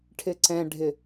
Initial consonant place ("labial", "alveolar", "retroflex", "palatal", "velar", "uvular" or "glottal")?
retroflex